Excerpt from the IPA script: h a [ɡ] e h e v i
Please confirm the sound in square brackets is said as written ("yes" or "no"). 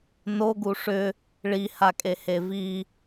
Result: no